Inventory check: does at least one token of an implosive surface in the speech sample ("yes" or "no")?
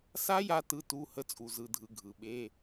yes